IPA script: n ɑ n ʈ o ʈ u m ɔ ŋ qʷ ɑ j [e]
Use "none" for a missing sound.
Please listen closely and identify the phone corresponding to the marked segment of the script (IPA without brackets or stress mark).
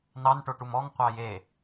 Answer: e